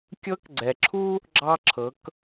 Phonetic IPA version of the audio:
kʲ ɤ˧˥ k ɡ͡ǀ ɛ˩ ǁʰ u˥ | ɡ͡ǁ ɑ˧ ǁʰ ɤ˩˧ k

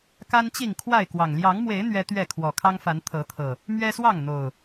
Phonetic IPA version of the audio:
k a˦ n t͡ɕ i˥˨ ŋ kʰ w a˥˨ ɪ̯ k w ɑ˨˩ ŋ l j ɑ˨˦ ŋ m w e˨˦ ɪ̯ n̪ ɥ ɛ˦ t̪ ɥ ɛ˥˨ kʰ w ɔ˨˩ kʰ ɑ˦ ŋ f a˨˦ n t̪ʰ ɤ˨˦ t̪ʰ ɤ˨˩ | m ɥ ɛ˦ s w ɑ˥˨ ŋ n̪ o˨˩ ʊ̯

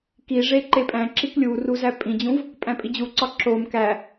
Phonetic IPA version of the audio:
k i ʐ e ǃ e pʼ æ̃ ǁ i k lʲ u r u z æ pʼ ĩ d͡ʑ ũ v | pʼ æ̃ pʼ i d͡ʑ u ǀ ɒ ǁ o m k æ

